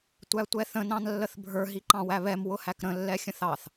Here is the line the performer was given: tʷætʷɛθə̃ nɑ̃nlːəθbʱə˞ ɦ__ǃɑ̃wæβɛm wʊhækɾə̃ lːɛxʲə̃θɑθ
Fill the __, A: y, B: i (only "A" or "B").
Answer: B